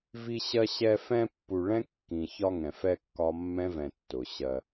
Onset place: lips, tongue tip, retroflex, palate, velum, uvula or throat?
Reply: lips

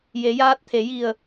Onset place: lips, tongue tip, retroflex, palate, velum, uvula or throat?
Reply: palate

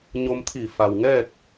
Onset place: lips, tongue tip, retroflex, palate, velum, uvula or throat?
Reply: palate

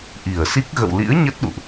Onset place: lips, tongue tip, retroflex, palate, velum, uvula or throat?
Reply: throat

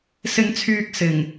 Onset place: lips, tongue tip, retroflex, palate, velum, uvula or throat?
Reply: tongue tip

